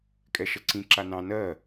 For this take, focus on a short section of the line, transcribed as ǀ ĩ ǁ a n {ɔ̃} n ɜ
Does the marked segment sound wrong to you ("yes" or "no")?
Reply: yes